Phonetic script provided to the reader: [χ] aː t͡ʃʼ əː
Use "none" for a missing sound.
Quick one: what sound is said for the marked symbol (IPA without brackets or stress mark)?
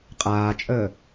qʼ